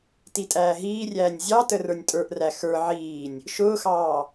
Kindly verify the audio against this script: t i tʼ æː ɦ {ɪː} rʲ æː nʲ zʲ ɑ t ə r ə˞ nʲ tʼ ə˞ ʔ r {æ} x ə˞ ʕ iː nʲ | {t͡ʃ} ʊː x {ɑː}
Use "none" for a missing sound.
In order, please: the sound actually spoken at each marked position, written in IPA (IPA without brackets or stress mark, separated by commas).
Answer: iː, æ, ʃ, ɑː